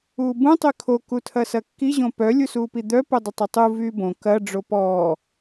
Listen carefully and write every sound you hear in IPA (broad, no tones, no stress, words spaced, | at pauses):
uːbũ tˤykʰo kutʰɐsɐkːi ʑõpœ lʲusuːpid̪œ pudˤɪtˤitˤu vyːbõ kɐ ɖ͡ʐopɔː